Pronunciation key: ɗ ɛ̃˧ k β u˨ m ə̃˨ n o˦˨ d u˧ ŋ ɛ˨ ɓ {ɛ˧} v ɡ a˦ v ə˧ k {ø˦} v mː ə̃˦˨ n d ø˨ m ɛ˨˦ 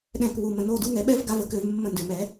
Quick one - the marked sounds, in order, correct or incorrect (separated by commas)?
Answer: incorrect, incorrect